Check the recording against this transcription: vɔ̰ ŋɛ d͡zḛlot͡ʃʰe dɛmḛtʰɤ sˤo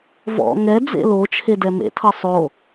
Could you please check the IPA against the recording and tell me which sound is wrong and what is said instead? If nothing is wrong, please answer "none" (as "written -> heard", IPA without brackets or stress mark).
none